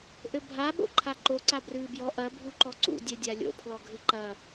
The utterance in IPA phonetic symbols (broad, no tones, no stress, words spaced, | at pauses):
ʔɘbʱa ɓo̰ǃʰaǃo ǀabrɨːbjɔ ʔɐ bʱuǃɔǀṵ dʲɛdʲalʲo̰ pʰlɔɡʱɨǃɐ